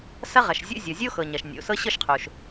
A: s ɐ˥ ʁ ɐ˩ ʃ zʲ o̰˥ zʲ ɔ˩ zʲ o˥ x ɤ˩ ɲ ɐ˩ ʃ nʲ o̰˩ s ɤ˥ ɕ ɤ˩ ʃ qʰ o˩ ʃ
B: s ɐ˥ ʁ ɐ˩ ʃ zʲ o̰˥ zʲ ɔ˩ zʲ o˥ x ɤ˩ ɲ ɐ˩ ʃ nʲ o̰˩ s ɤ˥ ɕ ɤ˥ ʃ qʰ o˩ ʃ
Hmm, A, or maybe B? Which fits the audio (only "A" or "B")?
B